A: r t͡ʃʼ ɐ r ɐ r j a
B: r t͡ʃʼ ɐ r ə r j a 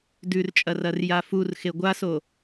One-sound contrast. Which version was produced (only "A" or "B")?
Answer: A